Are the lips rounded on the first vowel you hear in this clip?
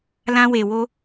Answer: no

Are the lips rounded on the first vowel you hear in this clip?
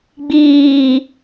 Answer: no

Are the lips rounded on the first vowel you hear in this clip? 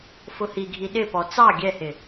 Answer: yes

